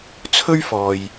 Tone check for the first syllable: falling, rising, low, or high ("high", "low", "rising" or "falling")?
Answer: high